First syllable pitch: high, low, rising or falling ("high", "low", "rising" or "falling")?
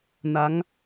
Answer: rising